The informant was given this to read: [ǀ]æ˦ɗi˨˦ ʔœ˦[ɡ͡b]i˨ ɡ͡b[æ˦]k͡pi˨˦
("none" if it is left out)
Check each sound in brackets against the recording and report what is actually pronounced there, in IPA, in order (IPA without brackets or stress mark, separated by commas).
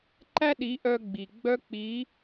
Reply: ǃ, ɡ͡b, œ˦